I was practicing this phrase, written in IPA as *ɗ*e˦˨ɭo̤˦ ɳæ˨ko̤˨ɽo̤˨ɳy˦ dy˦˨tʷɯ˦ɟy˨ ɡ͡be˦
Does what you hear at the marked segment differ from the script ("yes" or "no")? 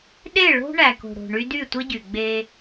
no